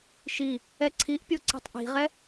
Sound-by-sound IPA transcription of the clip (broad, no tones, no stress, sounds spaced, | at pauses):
ʃ i | ɛ ǀʰ i ʔ pʲ o ǀ i̤ tˤ ʔ i̤ ʁ ɛ